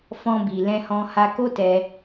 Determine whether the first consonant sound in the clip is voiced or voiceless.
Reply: voiceless